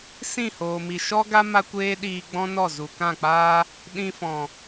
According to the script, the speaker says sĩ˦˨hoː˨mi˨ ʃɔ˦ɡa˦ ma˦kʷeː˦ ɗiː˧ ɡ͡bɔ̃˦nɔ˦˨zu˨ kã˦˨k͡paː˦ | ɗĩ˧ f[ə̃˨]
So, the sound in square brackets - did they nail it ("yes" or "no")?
no